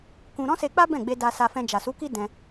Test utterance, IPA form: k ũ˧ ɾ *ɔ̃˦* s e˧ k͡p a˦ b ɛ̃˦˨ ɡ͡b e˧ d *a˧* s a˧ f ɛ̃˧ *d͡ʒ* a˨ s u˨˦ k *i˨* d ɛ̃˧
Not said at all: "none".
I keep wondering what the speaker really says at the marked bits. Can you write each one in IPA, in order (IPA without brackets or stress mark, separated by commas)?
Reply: ɔ̃˦, a˧, d͡ʒ, i˦